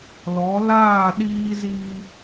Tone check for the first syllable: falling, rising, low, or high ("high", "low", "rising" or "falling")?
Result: rising